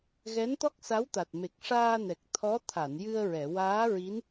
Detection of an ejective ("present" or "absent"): absent